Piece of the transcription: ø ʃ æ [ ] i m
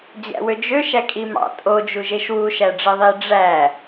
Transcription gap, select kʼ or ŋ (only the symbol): kʼ